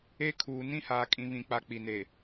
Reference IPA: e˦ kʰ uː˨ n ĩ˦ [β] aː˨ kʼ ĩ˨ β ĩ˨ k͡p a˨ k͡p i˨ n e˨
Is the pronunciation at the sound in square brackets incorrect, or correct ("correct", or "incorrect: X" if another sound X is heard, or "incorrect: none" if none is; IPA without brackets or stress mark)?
incorrect: h